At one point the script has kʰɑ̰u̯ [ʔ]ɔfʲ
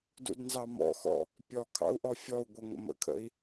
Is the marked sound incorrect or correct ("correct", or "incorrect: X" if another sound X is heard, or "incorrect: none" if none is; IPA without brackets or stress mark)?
correct